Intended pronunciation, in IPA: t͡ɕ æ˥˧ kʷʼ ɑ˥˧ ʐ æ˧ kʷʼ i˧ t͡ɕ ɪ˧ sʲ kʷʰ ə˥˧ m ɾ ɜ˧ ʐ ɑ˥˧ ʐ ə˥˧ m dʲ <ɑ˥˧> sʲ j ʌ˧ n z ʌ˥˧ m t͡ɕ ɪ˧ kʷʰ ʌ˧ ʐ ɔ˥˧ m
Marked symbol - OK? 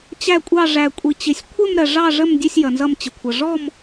no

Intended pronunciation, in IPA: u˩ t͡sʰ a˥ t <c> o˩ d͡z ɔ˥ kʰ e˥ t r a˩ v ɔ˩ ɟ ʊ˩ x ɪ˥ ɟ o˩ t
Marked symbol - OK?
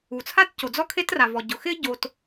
yes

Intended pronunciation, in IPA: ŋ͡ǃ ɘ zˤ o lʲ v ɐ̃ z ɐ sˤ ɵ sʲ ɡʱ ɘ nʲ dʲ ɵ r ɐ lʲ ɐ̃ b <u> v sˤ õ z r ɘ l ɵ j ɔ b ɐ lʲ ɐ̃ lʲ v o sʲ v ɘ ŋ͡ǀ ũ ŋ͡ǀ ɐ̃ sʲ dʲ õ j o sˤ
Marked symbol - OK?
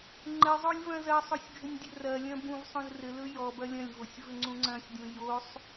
no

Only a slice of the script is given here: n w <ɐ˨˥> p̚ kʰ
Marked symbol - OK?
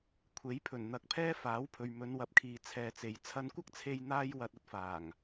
yes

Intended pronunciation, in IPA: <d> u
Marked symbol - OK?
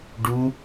no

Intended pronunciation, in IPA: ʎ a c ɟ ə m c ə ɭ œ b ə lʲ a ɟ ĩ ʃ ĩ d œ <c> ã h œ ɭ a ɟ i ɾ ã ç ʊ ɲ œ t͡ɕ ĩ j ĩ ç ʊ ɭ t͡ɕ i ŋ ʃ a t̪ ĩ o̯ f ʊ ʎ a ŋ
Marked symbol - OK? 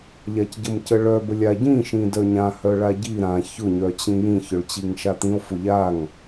no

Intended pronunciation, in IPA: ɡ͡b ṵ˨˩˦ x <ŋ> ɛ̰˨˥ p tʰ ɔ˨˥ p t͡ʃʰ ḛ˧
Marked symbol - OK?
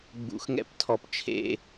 yes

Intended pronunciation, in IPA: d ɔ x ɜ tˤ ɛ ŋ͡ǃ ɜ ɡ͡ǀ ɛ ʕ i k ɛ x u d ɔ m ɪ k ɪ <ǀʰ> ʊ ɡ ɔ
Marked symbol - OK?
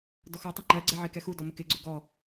no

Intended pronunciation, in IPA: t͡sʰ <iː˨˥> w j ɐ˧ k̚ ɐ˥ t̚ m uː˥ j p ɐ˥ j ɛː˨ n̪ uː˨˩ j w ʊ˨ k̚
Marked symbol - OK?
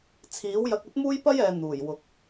yes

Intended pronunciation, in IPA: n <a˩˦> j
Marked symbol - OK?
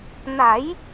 yes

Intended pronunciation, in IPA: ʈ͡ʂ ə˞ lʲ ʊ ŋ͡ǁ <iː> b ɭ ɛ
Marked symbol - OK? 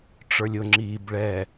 yes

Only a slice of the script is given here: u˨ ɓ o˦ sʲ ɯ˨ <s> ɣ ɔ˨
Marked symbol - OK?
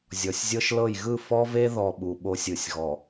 no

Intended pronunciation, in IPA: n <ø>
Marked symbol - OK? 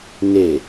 no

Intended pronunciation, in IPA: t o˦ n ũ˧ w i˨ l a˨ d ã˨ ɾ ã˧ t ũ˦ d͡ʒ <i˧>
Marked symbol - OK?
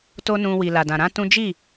no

